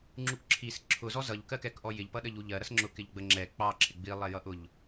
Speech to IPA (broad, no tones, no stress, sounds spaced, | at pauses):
ŋ͡ǁ u k ǁʰ i s ǁʰ ʊ z ɔ z ʌ ʎ k ɜ k ɛ k ʔ ɔ j ɪ ʎ p ʌ ɗ ə ʎ u ʎ ɜ ɾ ʌ s ŋ͡ǁ ʊ k ɪ ʎ ɡ͡b ə ŋ͡ǁ ɛ k͡p ɑ ǁʰ ɪ ɡ͡b i lˠ ɛ j ʌ ʔ ʊ ʎ